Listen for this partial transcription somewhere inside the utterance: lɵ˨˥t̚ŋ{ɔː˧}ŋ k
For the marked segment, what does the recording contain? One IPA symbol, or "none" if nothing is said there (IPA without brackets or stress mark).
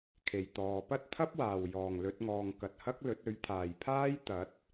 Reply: ɔː˨